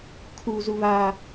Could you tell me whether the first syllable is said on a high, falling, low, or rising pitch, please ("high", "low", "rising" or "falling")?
high